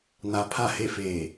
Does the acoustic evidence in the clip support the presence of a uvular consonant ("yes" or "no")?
no